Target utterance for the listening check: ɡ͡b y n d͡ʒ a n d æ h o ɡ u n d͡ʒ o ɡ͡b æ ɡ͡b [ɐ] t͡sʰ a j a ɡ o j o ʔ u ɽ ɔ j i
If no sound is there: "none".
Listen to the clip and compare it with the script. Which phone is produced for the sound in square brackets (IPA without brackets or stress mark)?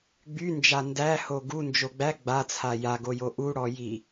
a